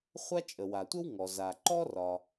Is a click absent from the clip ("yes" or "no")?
no